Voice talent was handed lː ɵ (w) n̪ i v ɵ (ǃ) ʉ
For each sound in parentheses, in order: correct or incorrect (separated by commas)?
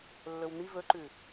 correct, correct